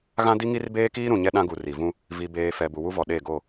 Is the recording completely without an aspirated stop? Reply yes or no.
yes